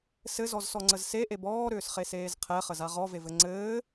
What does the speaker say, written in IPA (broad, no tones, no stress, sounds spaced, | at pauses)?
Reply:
s ɘ z ɔ z s ɔ ŋ͡ǀ ə z s e ʔ e b ɔː ɾ ʏː s χ e s eː z qʰ ɛ χ ə z a ʁ ɔ v e v ɘ ŋ͡ǀ ɘː